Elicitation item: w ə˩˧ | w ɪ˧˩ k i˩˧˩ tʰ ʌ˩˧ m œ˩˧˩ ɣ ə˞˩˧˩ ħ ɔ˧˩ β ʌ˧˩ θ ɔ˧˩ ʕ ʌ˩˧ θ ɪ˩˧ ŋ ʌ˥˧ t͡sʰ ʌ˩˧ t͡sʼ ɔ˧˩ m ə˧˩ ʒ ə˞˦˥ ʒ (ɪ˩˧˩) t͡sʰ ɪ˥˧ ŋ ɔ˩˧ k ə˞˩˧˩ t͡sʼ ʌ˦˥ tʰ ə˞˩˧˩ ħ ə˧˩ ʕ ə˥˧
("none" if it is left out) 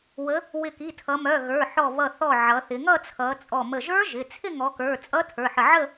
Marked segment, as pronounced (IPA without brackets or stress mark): ɪ˩˧˩